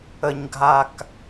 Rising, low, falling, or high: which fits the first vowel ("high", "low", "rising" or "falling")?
low